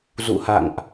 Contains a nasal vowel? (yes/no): no